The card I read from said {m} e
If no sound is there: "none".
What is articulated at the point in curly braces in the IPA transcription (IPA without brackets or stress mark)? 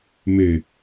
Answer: m